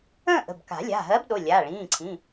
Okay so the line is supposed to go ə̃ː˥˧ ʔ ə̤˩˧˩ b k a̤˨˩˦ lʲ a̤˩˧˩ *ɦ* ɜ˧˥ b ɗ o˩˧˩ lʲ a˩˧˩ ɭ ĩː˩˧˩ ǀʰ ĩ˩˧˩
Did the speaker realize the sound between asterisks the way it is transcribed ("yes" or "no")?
yes